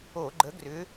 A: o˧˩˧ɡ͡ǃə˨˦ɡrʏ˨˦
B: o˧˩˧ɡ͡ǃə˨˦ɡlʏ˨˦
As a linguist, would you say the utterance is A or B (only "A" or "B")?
A